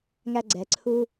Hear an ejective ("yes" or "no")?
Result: no